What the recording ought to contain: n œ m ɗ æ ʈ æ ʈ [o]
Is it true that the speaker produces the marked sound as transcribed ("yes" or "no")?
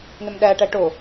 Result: yes